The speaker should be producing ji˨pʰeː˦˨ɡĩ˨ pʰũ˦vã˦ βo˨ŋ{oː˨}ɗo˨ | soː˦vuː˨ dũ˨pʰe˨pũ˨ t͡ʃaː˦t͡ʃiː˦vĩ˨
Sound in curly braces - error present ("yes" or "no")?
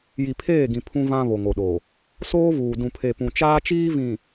yes